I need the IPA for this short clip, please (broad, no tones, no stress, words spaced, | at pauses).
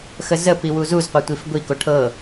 xəzəpi wuzuzqʷɤ tʷifɡʷiko ʈʰɤ